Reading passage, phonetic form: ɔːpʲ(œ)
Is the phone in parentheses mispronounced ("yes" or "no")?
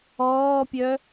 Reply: no